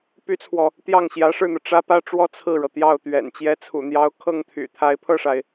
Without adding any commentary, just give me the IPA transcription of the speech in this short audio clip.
p y˥ t͡sʰ w ɔ˨ | t̪ j ɑ˥˩ ŋ ɕ j ä˧˥ ʂ ɻ̩˥˩ n̪ ɤ˩ ʈ͡ʂ ä˥ p ä˥˧ ʈ͡ʂ w ɔ˥˧ t͡sʰ ɹ̩˥˩ ɻ ɤ˩ t̪ j ɑ˥˩ ʊ̯ t̪ ɥ ɛ̰˨˩ n t͡ɕ j ɛ˧˥ t͡sʰ ṵ˨˩ n̪ j ɑ˧˥ ʊ̯ kʰ ɤ˥˩ ŋ t̪ʰ y̰˨˩ t̪ʰ a˧˥ ɪ̯ pʰ ɤ˥˩ ʂ a˩ ɪ̯

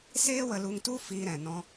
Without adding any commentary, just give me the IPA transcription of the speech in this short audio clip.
s eː˦ w ə˧ l u˧ ŋ t u˦ f iː˧ ɾ ɛ̃˨ n ɔ̃˧

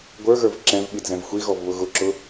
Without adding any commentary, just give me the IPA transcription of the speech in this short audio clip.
ɡʷ ə˞ ɣ ə˞ v ǁ ɛ̃ v ɓ i d z ɛ̃ v xʷ i ɣ ɔ v β ʊ ɣ ʊ ǁ ʊ

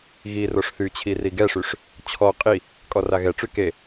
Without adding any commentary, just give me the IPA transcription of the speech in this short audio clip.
ɣ i r o ʂ θ y t͡ɕʰ i r i ɡ ɛ ʂ y ʂ | t͡ɕʰ ɔ qʼ i | kʼ ɔ r a ɣ ɛ ʈ͡ʂ y k e

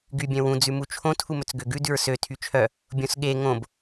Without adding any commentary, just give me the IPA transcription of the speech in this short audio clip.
ɡ y bʲ œ̃ w ũ d͡z ʉ m u t͡ʃʰ õ tʰ u m ɵ t͡s ɡ ø ɡ ʉ d ʉ ɹ s ø tʰ y t͡ʃʰ œ | bʲ õ s ɠ e ŋ õ b

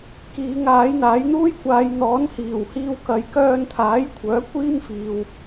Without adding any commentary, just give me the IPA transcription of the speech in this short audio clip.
k iː˨˧ ŋ aː˨˥ j n̪ aː˨˥ j n̪ uː˥ j kʷ aː˨˧ j n̪ ɔː˨˥ n h iː˨˩ w h iː˧ w k ɐ˨˧ j k œː˧ n t̪ʰ aː˨˥ j kʷʰ œː˨˥ kʷ iː˥ m f iː˨ w

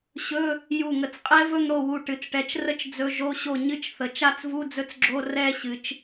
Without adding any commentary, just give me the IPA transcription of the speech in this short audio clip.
ɕ ɵ˧˥˧ | j u˧˩ ŋ ə˧˩ t͡s qʼ ɛ˦˥ v ɵ˥˧ ŋ ɽ o˥˩ w u˧˩ ʈ ɨ˩˧ t͡s ʈ ɛ˩˧ t͡ʃ r ə˥˧ t͡ʃ d͡z ɵ˧˥˧ ʒ o˧˥˧ ɕ o˥˩ ɲ ɨ˥˧ t͡ʃ θ ə˩˧ t͡ʃ a˥˧ t͡s v u˧˥˧ d͡z ɵ˦˥ t͡s ɡ͡ǁ o˧˥˧ r ɛ˥˧ ɕ ɨ˩˧ t͡ʃ

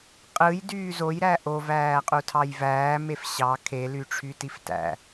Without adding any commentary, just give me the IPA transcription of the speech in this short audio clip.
qʼ ɯ j d yː z o j ɾ æ ʔ o v æː qʼ u tʰ ɑ j v æː m e f ɕ ɑ kʰ e l y ʈ͡ʂʰ y t i f t æ̰

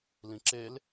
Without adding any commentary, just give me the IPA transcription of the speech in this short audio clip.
l ĩ ǁ e l

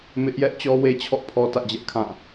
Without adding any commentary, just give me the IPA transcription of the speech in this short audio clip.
m ɪ˦ ʔ j ɛ˦ ʔ t͡ɕ ɔ˦ w e˦ t͡ɕʰ ɔ̰˦˨ pʰ ɔ˦ t ä̰˦˨ d͡ʑ ɛ˦ ʔ kʰ ã˦˨

